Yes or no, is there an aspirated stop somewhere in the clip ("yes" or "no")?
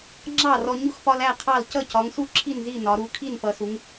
yes